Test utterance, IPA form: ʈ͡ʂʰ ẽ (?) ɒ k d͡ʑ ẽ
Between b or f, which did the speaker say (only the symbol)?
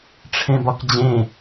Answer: b